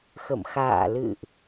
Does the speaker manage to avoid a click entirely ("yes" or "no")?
yes